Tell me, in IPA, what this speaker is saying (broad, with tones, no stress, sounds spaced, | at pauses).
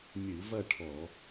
mʲ ɨ˧˩˧ v ɐ˥˧ ʈʰ ɔ˧˩˧